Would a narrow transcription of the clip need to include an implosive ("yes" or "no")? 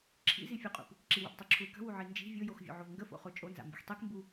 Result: no